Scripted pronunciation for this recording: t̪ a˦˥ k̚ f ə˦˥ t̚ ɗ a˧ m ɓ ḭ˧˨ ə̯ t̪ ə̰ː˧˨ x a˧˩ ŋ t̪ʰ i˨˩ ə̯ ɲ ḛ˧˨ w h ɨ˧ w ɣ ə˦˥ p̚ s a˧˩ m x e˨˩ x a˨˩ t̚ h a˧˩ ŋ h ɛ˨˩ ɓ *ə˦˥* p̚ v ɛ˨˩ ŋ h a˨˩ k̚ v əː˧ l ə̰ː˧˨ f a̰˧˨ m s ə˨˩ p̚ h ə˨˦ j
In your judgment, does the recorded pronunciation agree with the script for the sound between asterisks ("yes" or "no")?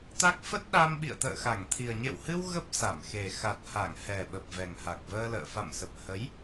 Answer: no